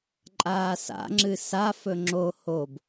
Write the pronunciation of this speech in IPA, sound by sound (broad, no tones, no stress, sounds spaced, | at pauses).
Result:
ǃʼ aː s a̰ ŋ͡ǁ ɨ s a f ɵ ŋ͡ǁ o h o b